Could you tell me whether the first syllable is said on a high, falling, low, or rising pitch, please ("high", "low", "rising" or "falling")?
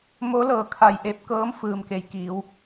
rising